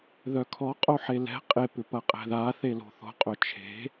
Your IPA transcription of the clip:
ðœkʰɔ qʼoħelɛ̤ qʼep ʏpɐqʼɛ̤ða θelo̤θo̤ qʼœt͡ʃʰe̤

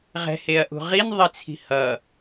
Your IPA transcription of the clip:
ʁɛ̤heɐ̯ ʔṳʁin ðˤit͡sʰi̤hʌ

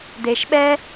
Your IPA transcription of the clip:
d̪e˨ʃɓɛ˦

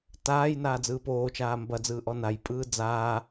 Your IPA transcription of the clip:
taːj naːd͡zɯːpoːt͡ʃaː mbɐd͡zɯː ʔɔnajpʼɯː d͡zaː

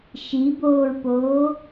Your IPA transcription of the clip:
ʃiboːɹpoː

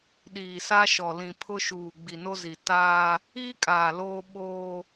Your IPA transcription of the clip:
ɗiː˨sa˦ʃɔ˨ lĩ˨pʰʊ˦ʃuː˨ ɡ͡bi˨no˦zi˨ taː˦ | iː˦kʼaː˨ loː˦ ɓoː˦

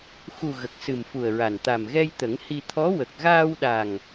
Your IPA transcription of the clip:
xu˨˩ ɣə˨˩k̚sɨ˨˩mfu˨˩ə̯ɹa˨˩n t̪a˨˩mɣɛ˧j t̪ə˨˩˦ŋhi˧ t̪ʰɔ˧˥wə˨˩k̚ ɣaː˧wɗa˨˩ŋ

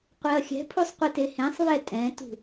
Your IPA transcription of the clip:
qʷeɐ̯xʲɛ̤pʰusˤ qʷetehẽsˤβɛ tʼɛ̃tṳ

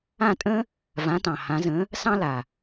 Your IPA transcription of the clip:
ã˥˩tʼə̃˥ | vã˩˥tɑ̃˩ hã˩˥zə̃˩˥ | sɑ̃˥la˩

